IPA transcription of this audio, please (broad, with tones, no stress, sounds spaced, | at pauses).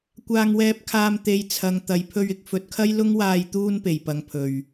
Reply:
kʷ aː˧ ŋ w ɛː˧ p̚ kʰ aː˧ m t̪ e˧ j t͡sʰ ɐ˨˧ ŋ t̪ ɐ˨ j pʰ ɵ˧ ɥ ɪ˨˥ k̚ f ɵ˨ t̚ kʰ ɐ˥ j l ʊ˥ ŋ w aː˧ j t̪ uː˥ n p e˨˩ j p ɐ˨ ŋ pʰ ɵ˨˩ ɥ